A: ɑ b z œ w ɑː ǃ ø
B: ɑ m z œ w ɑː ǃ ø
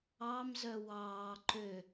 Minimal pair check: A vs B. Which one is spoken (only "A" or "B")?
B